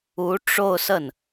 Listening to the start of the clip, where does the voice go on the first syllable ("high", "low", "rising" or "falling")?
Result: rising